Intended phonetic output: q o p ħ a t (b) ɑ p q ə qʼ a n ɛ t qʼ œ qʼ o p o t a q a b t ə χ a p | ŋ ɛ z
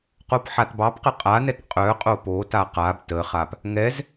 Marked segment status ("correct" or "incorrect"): correct